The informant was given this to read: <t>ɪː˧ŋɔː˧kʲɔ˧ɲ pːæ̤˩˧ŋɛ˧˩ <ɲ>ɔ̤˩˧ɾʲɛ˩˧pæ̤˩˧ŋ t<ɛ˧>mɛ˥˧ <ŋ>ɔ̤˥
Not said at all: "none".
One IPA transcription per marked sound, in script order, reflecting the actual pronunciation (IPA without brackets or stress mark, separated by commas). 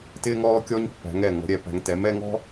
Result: t, ŋ, ɛ˩˧, ŋ